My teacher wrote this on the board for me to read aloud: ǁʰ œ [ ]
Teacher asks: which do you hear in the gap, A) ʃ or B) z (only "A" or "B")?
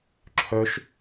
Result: A